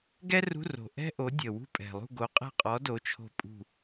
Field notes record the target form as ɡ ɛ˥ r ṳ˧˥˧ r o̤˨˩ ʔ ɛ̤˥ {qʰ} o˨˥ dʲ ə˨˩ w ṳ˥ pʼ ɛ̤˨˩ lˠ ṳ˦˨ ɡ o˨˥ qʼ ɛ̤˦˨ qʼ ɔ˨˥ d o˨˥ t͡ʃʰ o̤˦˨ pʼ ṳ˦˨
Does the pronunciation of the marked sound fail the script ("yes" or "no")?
yes